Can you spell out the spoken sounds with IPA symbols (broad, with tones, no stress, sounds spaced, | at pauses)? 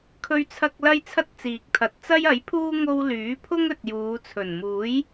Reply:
kʰ ɵ˥ ɥ t͡sʰ ɐ˥ k̚ l ɐ˥ j t͡sʰ ɐ˥ t̚ t͡s iː˨ k̚ t̪ʰ ɐ˨˥ t̚ t͡s ɐ˥ j ɐ˨˥ j pʰ uː˥ ŋ o˥ w l yː˨˥ pʰ ʊ˥ ŋ ɵ˨ t̚ j uː˨˧ t͡sʰ ɵ˨˩ n m uː˨˥ j